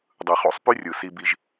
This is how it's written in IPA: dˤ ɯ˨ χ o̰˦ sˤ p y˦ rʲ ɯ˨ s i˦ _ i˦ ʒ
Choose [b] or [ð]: b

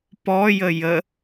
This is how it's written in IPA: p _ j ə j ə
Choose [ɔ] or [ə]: ɔ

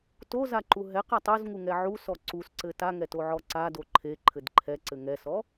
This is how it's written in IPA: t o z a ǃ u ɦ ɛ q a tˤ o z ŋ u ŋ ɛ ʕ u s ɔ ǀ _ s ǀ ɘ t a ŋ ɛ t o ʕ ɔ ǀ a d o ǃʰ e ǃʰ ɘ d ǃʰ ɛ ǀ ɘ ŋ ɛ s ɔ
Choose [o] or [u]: u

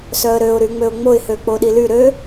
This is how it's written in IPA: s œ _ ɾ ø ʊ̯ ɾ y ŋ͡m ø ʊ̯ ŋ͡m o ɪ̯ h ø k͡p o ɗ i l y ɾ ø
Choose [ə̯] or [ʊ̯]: ə̯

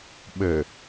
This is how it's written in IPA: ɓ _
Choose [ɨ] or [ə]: ə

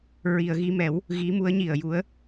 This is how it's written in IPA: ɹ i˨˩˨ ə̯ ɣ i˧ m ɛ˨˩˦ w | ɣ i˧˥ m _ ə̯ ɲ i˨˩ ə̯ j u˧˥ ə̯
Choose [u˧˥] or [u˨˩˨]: u˧˥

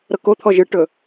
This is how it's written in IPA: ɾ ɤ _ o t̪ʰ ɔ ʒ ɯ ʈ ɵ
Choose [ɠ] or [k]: k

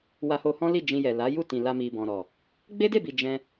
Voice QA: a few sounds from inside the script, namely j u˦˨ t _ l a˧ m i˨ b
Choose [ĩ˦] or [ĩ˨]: ĩ˨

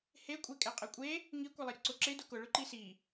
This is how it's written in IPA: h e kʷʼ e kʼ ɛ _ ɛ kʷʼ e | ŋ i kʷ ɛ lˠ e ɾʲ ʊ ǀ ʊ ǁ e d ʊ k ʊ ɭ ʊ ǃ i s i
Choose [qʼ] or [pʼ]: qʼ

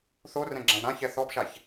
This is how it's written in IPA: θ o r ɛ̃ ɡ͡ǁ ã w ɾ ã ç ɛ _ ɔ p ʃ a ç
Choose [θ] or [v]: θ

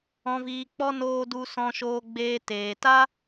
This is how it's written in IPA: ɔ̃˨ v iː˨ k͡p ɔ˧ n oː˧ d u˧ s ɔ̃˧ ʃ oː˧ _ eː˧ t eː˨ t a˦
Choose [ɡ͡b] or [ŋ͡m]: ɡ͡b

